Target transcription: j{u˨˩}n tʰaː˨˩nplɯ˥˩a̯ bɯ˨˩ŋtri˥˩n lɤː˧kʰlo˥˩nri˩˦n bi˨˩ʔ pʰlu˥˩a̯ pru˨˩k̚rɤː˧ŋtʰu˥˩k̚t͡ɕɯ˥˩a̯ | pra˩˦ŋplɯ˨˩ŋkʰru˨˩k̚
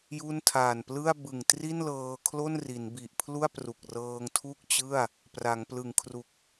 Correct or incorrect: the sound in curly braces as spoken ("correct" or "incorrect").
incorrect